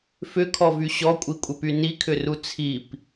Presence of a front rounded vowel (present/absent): present